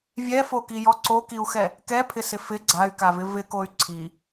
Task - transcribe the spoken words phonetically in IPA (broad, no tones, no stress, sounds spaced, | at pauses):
vʲ ɛ f o k i j ɔ ǀ o k i u̯ x ɛ | k ɛ pʰ ɪ s ɪ f ɪ ɡ͡ǀ a y̯ k a v ɪ v ɪ k o y̯ ǀʰ i